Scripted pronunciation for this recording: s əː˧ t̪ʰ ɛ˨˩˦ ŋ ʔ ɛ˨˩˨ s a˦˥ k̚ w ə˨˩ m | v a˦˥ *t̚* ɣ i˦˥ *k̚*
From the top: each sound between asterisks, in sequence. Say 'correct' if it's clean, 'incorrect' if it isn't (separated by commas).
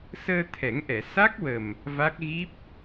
incorrect, incorrect